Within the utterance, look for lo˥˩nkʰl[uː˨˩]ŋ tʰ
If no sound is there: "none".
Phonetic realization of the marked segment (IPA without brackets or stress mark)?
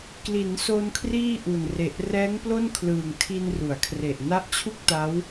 ɯː˨˩